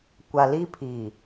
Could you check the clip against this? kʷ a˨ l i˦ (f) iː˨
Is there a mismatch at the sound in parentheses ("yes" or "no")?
yes